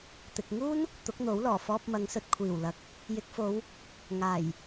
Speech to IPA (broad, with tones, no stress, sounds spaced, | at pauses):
t̪ ɪ˨ k̚ ŋ uː˥ n | t̪ ʊ˨˥ k̚ n̪ o˨˥ w l ɔː˨˩ f ɔː˧ p̚ m ɐ˨˧ ŋ s ɵ˧ t̚ kʷʰ iː˨˩ w l ɐ˨˥ k̚ | j ɪ˨˥ k̚ f o˨˧ w | ŋ aː˨˩ j